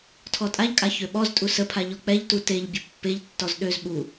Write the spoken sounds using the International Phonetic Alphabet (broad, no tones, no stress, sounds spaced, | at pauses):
tʰ ɔ tʼ a ʎ kʼ a ç ø ɓ ɔ z tʼ u s ə pʰ a ʎ ɔ k͡p ɛ ʎ t u t e ʎ bʲ ə pː e ʎ tː ɔ z ɗ ø z ɓ u